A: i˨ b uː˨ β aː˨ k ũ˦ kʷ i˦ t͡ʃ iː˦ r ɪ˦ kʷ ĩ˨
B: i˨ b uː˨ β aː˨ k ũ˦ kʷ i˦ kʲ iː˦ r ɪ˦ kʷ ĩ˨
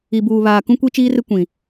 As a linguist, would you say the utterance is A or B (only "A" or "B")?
A